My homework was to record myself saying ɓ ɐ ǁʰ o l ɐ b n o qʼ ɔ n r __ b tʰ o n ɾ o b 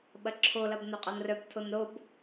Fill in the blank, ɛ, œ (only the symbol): œ